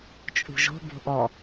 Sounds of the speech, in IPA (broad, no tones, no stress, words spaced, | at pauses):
t͡ʃʼṳʒo̤ bo̤ʔɔ